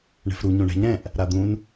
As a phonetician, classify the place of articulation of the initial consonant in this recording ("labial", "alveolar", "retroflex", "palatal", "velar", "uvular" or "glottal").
retroflex